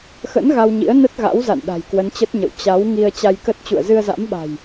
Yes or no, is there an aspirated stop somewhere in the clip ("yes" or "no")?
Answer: no